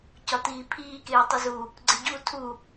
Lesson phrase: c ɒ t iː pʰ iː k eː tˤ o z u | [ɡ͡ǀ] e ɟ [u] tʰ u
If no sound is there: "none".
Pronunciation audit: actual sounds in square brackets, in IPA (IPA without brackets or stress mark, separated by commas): ɡ͡ǀ, u